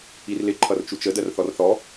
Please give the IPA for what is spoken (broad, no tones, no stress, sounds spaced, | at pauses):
i r l ɪ ǃʰ ʌ r t͡ʃ u t͡ʃ ə d ɜ r θ ɔ r θ ɔ